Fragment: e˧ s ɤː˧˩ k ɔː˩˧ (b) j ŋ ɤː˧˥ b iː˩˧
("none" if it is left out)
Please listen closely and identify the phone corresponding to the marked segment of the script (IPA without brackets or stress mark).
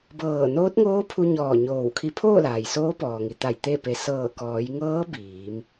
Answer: none